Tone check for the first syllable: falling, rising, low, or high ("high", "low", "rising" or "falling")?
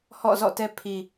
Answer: falling